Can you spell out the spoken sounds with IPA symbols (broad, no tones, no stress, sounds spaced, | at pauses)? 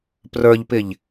p r ə˞ ʎ p ɪ ʎ